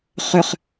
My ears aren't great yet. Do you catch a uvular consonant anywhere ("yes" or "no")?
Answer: yes